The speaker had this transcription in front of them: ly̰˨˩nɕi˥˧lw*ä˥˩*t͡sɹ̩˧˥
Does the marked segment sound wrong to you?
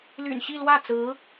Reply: no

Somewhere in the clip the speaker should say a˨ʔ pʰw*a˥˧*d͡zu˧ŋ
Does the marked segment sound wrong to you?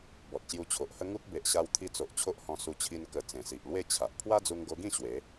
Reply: yes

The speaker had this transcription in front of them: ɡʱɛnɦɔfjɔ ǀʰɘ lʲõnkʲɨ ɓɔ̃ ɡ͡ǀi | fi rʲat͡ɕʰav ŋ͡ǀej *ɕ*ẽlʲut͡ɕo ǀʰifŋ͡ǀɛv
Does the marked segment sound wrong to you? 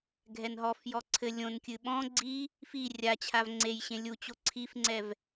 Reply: no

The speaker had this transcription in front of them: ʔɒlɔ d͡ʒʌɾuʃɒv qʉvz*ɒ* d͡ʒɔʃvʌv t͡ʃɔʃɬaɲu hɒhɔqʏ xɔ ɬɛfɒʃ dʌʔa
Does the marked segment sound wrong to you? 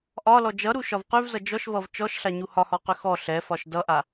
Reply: yes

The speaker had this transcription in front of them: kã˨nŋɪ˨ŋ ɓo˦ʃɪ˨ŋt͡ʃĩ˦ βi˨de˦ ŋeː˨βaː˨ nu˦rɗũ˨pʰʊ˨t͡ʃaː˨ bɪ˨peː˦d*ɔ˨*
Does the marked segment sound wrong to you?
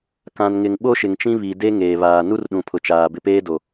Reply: yes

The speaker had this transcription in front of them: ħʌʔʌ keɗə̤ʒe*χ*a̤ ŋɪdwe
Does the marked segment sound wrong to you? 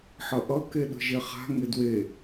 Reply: no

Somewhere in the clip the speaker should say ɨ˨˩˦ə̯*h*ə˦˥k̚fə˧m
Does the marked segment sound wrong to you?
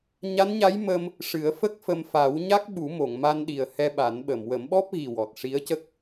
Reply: yes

